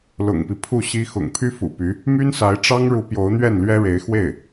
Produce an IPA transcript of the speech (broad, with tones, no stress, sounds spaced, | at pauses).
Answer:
l ʊ̰˨˩ ŋ p i˦ pʰ u˥˩ ɕ i˥ x ʊ̰˨˩ ŋ pʰ y˥ f ṵ˨˩ p y˧˥ | m y˥ n s a˧˥ ɪ̯ ʈ͡ʂ ɑ˥ ŋ ɻ u˧˥ p j o˧˥ ʊ̯ n̪ ɥ ɛ˥˩ n l ɥ ɛ˥ ɻ e˧˥ ɪ̯ x w e˥˩ ɪ̯